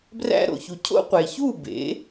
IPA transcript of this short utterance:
b r æ̰˧ ɾ o̰˩ ç u˩ cʰ o̰˥ qʷ e˩ ç uː˥˩ b ḛ˩˥

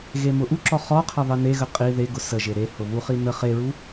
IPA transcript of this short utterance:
ɣ e m ʊ ʔ u ǁ ɔ χ ɔ qʰ ɘ ðˤ ɘ n e ɣ ə qʼ i ð e ɡ ʊ s ə ʒ e ɾ e h ʊ β u χ i n ə χ e ɹ u

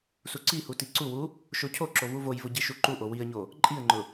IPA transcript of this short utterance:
s u ǀ i h u t i ǀ u w u | ʃ o cʰ o ǁ o v u v o j v ʊ ɟ i ʃ u ǃ u ʔ o w i ə̯ ɲ o | ǃʼ i ə̯ ŋ͡ǃ ʊ

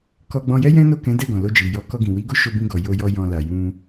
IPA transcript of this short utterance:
k ɔ˧ ɡ͡b ɔ̃˧ j ɛ˦ j ɛ̃˦ n o˦˨ k ɛ̃˨˦ d ɛ˦˨ ɡ ɔ̃˨ l o˧ d͡ʒ i˨ j ɔ˨˦ k ɔ˧ ɡ ĩ˨ w i˨˦ ɡ o˦ ʃ o˧ b ĩ˧ ɡ ɔ˨ j o˧ j ɔ˧ j ɔ̃˧ l a˨ j ũ˧

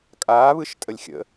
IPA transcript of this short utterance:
kʼ aː β ɯ ʃ tʼ ə lʲ xʲ ə̰

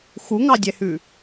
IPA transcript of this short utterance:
x u ŋ ɑ dʲ ɛ h ʉ

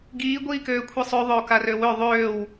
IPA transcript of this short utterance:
ɡ iː ɡʷ iː k øː kʷʰ i sˤ ø ðˤ ø o̯ k a r ø w ø ðˤ øː w

